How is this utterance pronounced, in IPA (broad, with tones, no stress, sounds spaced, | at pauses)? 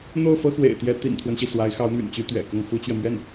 n̪ o˥˩ ʊ̯ f ɤ˥ x w ḛ˨˩ ɪ̯ t̪ j ɛ˧˥ t̪ ḭ˨˩ n t̪ʰ w ə˦ n ɕ i˩ s w a˧˥ ɪ̯ x ɑ˧˥ ʊ̯ m y̰˨˩ n t͡ɕ y˥ t̪ ɥ ɛ̰˨˩ k ʊ˥˩ ŋ f u˥ t͡ɕ ɥ ɛ˨ m ɥ ɛ˥˩ n